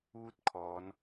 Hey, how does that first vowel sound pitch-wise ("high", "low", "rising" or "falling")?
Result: falling